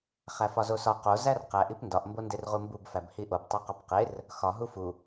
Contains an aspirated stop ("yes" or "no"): no